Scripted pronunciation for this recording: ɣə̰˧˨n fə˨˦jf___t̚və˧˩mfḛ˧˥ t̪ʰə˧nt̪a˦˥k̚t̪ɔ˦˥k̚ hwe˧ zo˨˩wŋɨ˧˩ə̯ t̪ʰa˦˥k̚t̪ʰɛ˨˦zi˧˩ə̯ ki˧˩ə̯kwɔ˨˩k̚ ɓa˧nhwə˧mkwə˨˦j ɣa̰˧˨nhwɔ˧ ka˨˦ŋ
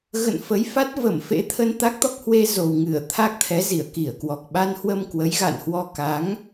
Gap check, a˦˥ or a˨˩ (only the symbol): a˦˥